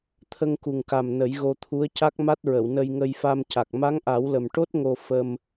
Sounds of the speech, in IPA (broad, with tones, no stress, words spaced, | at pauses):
t̪ʰə˧ŋku˨˩ŋka˨˩m nə˨˩˦jɣo˧t̪ʰu˧˥ə̯ ca˦˥k̚ma˦˥t̚ɹə˨˩˨w nə˧jŋə˧jfa˧mca˨˩k̚ ma˧˥ŋʔa˨˩˦wlə˨˩mʈo˦˥t̚ ŋo˧ fə˧m